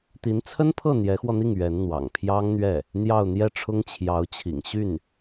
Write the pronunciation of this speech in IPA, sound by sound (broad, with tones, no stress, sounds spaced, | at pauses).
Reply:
t̪ i˧˥ n t͡sʰ ə˥ n pʰ ɤ˥˩ n̪ j ɛ˧˥ x w ɔ˧ n̪ i˥˩ ŋ ɥ ɛ˧˥ n n̪ w ɑ̰˨˩ ŋ pʰ j ɑ˥ ŋ n̪ ɥ ɛ˥˩ | n̪ j ɑ˥˧ ʊ̯ n̪ j ɛ˥˩ ʈ͡ʂʰ ʊ˥ ŋ t͡ɕʰ j ɑ˧˥ ʊ̯ t͡ɕʰ ḭ˨˩ ŋ ɕ y˥˩ n